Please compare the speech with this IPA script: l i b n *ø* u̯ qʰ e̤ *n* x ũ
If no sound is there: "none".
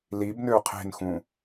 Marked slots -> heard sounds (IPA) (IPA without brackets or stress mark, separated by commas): ø, n